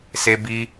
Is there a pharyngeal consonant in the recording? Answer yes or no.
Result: no